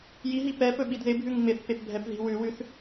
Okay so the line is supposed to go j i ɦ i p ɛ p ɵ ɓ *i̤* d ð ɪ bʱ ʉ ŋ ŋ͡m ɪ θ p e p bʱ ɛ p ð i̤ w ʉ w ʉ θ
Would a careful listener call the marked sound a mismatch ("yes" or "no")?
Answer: yes